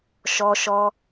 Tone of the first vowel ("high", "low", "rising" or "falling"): high